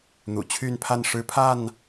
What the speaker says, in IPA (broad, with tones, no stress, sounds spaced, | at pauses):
n̪ ṵ˨˩ t͡ɕʰ y˥˨ n pʰ a˥˨ n ʂ ɻ̩˦ pʰ a˥˨ n